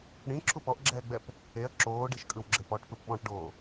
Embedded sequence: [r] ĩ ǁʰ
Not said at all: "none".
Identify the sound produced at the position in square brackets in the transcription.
ɽ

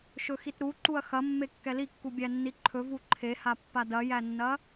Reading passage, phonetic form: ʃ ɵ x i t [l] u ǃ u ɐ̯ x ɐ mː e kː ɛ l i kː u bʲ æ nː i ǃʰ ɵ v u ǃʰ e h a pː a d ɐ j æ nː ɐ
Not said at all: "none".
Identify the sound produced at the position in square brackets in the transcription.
ɾ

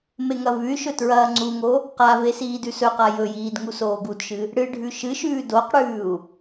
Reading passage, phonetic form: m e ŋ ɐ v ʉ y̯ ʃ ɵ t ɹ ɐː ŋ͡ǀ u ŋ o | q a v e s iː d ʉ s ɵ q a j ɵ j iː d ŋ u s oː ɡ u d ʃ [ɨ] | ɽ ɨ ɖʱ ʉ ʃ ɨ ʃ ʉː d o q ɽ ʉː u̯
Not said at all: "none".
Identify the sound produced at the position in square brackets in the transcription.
ɨ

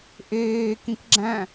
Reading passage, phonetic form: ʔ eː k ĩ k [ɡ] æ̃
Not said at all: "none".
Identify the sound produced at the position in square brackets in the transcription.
ɡ͡ǁ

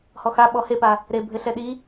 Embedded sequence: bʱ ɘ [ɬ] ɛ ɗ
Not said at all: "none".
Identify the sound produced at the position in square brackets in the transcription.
ɬ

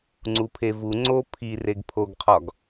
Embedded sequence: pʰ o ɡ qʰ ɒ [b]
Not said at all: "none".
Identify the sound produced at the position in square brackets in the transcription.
ɡ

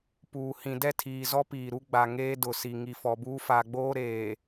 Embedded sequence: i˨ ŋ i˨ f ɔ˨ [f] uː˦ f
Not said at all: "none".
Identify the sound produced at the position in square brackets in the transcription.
b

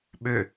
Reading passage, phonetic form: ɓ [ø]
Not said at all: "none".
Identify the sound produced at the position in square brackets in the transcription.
ø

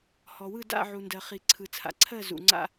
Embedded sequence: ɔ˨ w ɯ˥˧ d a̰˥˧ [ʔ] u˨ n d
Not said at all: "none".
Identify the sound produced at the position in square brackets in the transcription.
ʕ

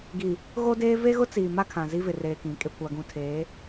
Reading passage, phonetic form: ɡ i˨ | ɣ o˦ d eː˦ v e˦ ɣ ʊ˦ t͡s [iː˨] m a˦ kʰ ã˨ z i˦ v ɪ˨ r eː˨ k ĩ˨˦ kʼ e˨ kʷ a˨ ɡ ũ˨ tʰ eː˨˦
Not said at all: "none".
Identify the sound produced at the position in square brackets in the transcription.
iː˨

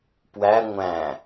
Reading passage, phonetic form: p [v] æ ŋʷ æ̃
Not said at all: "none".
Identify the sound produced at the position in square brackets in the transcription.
w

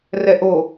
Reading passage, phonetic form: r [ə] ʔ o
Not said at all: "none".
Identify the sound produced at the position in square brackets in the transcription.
ɛ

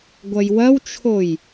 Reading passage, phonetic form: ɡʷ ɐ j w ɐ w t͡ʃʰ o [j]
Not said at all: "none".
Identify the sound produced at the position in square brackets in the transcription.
j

